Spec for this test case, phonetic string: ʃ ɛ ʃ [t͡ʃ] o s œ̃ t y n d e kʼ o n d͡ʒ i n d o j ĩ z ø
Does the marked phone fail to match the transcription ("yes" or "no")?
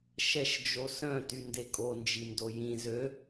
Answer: yes